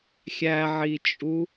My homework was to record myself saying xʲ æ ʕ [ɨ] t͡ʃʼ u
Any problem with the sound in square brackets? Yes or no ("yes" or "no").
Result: yes